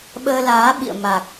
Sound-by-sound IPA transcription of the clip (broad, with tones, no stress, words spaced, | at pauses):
ɓəː˧laː˨˦ ɓḭ˧˨ə̯ ma˨˩k̚